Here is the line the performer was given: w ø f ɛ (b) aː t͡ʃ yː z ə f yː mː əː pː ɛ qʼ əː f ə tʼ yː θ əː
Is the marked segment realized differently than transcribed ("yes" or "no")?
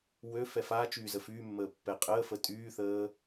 yes